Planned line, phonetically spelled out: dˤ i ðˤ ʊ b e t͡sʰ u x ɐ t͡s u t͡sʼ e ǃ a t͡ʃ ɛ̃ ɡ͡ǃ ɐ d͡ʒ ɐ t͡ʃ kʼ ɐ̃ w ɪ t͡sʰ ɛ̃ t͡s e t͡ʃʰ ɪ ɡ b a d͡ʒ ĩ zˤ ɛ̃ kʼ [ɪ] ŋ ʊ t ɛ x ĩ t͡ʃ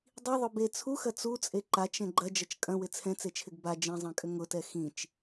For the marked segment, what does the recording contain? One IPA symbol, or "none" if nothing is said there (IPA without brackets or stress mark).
ʏ